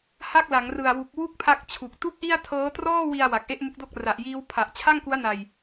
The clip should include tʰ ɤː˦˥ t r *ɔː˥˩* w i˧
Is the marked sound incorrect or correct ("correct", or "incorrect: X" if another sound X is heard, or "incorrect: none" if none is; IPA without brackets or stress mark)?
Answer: correct